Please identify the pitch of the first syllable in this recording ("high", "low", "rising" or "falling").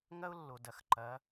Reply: high